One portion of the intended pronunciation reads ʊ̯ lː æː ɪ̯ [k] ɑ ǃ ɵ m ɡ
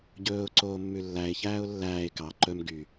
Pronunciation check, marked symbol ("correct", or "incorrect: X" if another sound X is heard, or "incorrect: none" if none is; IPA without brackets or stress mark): correct